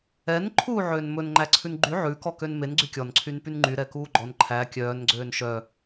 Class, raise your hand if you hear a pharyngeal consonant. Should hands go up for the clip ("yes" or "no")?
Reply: yes